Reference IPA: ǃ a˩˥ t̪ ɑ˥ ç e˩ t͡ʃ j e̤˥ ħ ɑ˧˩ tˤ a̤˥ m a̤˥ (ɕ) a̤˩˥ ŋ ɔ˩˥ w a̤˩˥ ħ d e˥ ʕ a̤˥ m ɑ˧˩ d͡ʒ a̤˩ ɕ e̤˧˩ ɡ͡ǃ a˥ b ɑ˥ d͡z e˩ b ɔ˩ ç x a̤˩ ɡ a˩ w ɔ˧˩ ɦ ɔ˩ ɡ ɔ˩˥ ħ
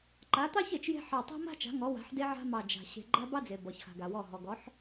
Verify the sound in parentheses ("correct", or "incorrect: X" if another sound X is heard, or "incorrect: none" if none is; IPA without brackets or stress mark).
incorrect: t͡ʃ